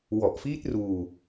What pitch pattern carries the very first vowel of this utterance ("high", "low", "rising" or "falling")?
low